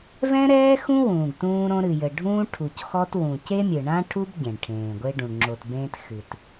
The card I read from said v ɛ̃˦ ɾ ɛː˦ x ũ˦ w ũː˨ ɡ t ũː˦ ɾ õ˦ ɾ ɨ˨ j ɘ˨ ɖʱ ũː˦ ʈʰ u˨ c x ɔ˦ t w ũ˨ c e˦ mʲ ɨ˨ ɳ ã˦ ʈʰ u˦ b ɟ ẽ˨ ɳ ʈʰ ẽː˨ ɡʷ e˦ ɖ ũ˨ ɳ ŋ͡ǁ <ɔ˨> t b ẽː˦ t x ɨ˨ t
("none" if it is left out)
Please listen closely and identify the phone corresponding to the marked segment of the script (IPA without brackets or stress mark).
o˨